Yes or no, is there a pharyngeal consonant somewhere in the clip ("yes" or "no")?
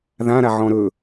yes